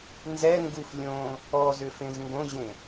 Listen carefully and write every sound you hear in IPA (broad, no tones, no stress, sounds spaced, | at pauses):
n z ɛ ŋ ɡ u f lʲ õ | ɔ z ʏ f ẽ z ŋ ɡ õ ʑ ẽ